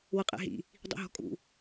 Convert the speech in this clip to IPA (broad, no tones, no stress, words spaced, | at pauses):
wɤqʼɛ̰ɦḭ | dˤḭɦɔ̤kʼṵ